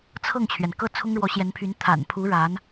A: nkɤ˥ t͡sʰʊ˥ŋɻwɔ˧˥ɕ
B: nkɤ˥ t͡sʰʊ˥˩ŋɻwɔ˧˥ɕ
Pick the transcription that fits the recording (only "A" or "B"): A